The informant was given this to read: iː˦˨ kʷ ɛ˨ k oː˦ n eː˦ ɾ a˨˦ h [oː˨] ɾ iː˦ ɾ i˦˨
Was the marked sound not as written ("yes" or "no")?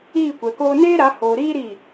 no